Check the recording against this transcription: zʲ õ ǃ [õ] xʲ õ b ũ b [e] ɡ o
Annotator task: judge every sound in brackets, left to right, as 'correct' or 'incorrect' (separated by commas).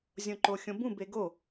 incorrect, correct